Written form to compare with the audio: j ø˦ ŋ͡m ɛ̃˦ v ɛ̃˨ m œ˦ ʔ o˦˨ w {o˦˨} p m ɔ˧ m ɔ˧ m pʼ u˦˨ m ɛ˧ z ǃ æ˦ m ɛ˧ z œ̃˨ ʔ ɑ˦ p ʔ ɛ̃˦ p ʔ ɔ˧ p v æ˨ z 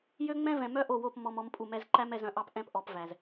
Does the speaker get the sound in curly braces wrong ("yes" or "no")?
no